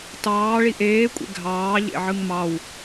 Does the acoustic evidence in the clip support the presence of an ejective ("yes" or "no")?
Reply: yes